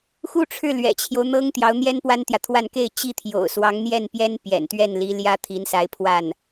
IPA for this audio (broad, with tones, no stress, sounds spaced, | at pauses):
x u˥˧ ʈ͡ʂʰ ɻ̩˥˩ l ɥ ɛ̰˨˩ t͡ɕʰ j o˦ ʊ̯ n̪ ɤ˥ ŋ t̪ j ɑ˧˥ ʊ̯ n̪ j ɛ˥ n p w a˥ n t̪ j ä˨ t̪ʰ w a˥˧ n k e˥˧ ɪ̯ t͡ɕ i˥˩ t̪ʰ j o̰˨˩ ʊ̯ s w ɑ˧˥ ŋ n̪ j ɛ˥˩ n p j ɛ˥ n p j ɛ̰˨˩ n t̪ ɥ ɛ˥˩ n l i˧˥ l j ä˥ t̪ʰ i˧˥ n s a˧˥ ɪ̯ pʰ w a˥˩ n